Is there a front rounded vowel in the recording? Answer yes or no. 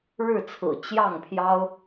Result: no